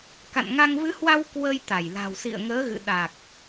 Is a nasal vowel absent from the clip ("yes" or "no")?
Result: yes